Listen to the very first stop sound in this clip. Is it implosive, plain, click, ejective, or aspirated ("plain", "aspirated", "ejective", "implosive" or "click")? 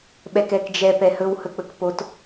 implosive